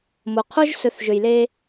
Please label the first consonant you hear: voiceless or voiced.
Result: voiced